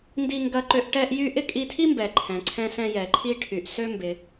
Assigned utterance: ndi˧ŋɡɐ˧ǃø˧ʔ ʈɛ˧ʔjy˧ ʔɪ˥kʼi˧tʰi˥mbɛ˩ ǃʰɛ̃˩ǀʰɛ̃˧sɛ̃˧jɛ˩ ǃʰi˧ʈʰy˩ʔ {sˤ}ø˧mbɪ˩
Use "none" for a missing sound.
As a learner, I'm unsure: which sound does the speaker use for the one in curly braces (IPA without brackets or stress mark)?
s